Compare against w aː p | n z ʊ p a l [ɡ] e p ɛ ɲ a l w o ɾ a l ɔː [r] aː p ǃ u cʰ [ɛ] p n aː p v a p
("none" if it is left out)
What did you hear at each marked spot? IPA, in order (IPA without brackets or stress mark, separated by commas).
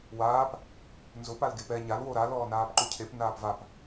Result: ɡ, n, e